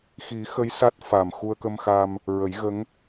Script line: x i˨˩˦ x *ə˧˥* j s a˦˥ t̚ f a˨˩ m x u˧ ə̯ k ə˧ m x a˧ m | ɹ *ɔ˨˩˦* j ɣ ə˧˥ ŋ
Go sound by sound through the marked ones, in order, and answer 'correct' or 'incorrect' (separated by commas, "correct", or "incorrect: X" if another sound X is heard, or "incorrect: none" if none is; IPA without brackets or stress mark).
correct, incorrect: ə˨˩˦